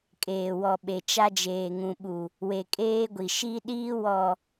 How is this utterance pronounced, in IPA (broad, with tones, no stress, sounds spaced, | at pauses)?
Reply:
kʼ eː˨ w ɔ˨ ɓ e˨ t͡ʃ a˦ d͡ʒ eː˨ ŋ ũ˨ ɓ u˨ | w e˨ kʼ eː˦ ɡʷ i˨ ʃ i˦ ɗ iː˦ w ɔ˨